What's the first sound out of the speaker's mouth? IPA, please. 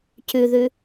c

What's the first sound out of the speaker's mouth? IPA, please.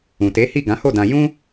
ũ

